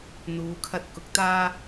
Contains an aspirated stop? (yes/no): yes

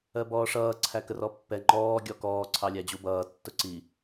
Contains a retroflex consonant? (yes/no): yes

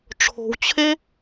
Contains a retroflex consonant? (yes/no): yes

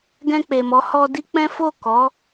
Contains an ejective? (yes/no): no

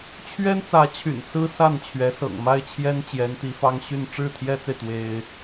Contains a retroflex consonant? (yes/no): yes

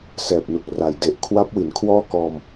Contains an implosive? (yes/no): no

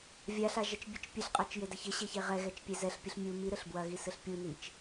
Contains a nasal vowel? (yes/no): no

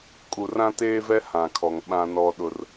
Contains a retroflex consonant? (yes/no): no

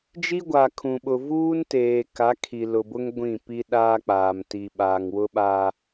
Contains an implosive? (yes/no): yes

